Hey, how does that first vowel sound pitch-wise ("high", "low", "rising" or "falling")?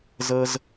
high